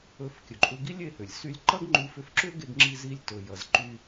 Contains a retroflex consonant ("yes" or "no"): no